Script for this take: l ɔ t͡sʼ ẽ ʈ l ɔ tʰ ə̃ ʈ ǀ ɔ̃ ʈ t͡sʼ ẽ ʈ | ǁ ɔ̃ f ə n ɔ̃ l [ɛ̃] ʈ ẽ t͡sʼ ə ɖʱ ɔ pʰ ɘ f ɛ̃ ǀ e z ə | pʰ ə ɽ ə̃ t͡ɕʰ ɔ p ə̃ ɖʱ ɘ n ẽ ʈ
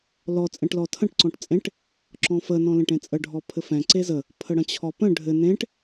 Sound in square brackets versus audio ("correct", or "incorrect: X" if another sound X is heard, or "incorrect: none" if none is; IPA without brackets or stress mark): incorrect: ẽ